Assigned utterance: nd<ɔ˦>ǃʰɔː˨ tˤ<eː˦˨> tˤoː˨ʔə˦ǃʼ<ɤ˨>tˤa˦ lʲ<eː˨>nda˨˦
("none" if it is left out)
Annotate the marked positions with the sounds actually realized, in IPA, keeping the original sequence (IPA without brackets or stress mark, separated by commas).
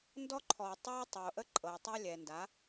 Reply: ɔ˦, eː˦, ɤ˨, ɛː˨